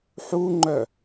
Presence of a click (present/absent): present